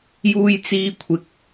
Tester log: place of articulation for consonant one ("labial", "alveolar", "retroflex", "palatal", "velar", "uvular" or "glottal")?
palatal